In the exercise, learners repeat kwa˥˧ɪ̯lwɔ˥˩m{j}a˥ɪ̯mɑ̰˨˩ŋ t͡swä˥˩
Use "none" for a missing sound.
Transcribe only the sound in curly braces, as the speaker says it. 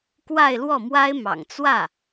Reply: w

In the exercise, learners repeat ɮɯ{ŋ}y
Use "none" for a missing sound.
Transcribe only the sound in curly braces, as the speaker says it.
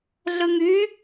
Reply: ŋ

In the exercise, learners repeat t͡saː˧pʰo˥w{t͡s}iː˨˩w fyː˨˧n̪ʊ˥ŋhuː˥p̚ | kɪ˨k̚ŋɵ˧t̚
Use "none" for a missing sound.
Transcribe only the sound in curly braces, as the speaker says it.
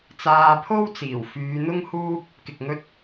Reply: t͡s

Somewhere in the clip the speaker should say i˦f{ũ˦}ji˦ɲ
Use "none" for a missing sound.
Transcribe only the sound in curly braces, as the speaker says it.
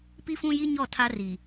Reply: ũ˦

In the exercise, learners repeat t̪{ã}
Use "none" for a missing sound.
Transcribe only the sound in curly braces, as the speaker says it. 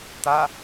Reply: a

